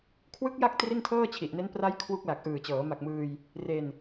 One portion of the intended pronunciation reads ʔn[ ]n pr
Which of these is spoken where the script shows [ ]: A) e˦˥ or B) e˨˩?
A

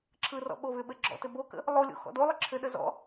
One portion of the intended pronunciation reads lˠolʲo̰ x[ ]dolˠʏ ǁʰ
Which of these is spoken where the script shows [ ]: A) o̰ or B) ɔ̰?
B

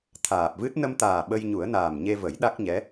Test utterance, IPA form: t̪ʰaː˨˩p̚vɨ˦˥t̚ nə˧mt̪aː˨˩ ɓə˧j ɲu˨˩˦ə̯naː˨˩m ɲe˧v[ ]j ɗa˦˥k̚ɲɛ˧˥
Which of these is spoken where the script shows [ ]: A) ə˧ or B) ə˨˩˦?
B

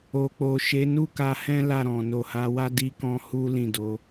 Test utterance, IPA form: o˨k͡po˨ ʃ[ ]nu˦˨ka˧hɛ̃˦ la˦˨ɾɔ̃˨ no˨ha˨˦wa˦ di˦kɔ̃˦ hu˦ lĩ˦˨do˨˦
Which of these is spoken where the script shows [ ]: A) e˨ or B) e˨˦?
B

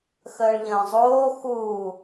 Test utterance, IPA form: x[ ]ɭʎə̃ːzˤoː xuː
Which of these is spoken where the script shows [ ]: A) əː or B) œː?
A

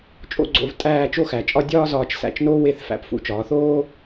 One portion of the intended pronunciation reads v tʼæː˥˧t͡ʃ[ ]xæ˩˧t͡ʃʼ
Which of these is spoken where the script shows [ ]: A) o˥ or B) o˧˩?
A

